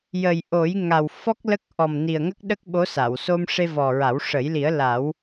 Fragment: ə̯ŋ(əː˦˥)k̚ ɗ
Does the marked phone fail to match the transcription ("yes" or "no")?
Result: yes